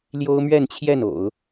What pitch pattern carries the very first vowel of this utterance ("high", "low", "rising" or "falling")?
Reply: high